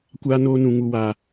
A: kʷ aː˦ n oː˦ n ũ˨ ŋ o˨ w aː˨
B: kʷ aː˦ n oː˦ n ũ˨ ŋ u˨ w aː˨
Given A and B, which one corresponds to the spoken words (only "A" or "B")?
B